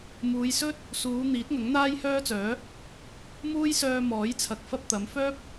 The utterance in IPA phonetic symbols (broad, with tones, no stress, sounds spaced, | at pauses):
m uː˨˧ j s ɵ˥ t̚ | s uː˨˧ n̪ iː˨˥ t̚ ŋ ɐ˨˥ ŋ n̪ aː˥ j h œː˥ t͡s œː˨˥ | m uː˥ j s œː˧ m ɔː˨˥ j t͡sʰ ɐ˨ k̚ f ɐ˥ p̚ t̪ ɐ˨˥ m f œː˥ p̚